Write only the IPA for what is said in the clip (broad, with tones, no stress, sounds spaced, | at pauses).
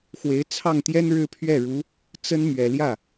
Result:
x w e˧˥ ɪ̯ t͡sʰ ɑ˥˩ ŋ t̪ j ɛ˥ n ɻ ɻ̩˥ pʰ ɥ ɛ˥˩ ɻ u˧˥ | t͡s ə˥ n m ɥ ɛ˨˩ l j ä˥˩